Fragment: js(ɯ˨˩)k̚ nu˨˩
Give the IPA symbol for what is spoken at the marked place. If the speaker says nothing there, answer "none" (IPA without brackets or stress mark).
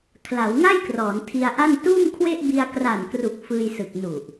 ɯ˨˩